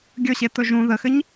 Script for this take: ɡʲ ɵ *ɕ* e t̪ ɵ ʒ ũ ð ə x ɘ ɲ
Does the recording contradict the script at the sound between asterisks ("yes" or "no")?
no